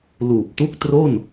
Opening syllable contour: low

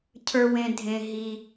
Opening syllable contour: low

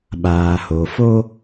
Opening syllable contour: low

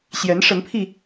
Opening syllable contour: rising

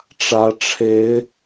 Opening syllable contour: rising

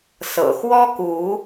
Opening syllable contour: low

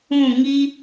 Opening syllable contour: falling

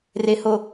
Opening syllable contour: low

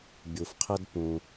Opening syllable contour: low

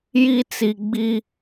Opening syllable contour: high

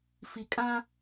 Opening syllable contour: low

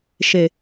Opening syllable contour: low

